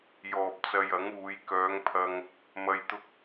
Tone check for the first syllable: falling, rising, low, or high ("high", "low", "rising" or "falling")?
low